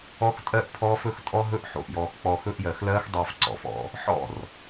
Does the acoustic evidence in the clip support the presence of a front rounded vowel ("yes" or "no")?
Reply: no